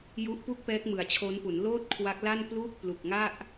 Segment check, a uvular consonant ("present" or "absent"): absent